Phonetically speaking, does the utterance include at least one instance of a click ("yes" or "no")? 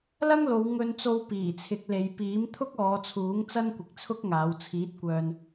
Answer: no